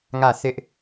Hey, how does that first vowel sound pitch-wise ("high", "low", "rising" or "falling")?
falling